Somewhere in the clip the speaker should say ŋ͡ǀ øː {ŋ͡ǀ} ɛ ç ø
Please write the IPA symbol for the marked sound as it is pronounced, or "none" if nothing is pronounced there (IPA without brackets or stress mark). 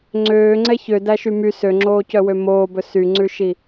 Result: ŋ͡ǀ